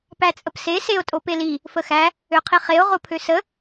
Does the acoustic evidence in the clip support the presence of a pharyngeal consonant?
no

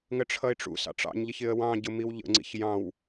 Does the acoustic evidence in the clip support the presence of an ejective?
no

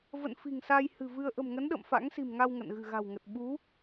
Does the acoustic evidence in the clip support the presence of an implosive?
yes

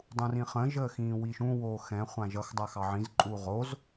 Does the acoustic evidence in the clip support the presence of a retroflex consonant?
no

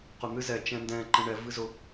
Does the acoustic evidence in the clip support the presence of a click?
yes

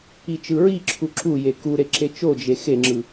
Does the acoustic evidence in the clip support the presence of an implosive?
no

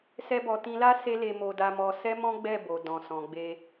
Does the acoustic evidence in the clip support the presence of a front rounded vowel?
no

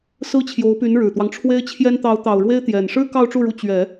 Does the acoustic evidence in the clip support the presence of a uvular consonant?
no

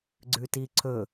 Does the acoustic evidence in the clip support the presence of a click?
yes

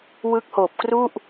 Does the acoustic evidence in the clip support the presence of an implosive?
no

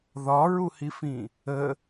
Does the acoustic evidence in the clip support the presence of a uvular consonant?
no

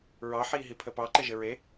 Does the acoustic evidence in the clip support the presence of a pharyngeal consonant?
yes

